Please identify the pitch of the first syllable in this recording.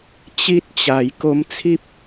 high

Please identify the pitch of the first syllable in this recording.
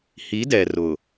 rising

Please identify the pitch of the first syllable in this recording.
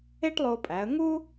high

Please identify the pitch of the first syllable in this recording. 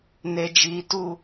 high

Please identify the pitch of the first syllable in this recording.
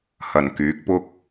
low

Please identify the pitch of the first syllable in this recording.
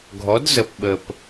rising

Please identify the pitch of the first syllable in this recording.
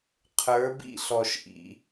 rising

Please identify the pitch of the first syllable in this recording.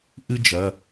high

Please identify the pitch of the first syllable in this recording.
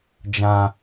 low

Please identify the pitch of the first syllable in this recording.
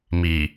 low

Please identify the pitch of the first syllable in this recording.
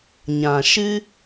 low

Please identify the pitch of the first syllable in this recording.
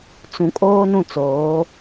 low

